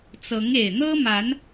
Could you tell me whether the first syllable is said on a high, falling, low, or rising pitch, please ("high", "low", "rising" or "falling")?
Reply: rising